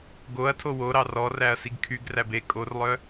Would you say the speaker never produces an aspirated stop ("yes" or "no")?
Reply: no